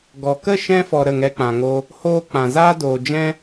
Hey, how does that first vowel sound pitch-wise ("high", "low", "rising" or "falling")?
low